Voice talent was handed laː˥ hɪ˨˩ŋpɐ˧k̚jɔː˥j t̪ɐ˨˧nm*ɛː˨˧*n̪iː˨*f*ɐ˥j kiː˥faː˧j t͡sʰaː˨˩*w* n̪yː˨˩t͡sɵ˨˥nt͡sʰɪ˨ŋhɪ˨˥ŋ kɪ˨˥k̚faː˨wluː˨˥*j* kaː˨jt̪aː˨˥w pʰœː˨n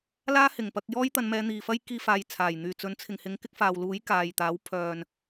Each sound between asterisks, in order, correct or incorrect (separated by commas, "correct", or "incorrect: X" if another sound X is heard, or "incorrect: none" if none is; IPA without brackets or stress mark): correct, correct, incorrect: j, correct